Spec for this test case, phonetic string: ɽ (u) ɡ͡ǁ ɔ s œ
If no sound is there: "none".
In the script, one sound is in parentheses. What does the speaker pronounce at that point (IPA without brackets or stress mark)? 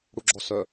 u